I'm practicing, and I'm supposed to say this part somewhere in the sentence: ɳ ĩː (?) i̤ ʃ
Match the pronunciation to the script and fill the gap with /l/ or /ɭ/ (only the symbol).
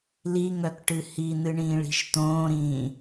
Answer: ɭ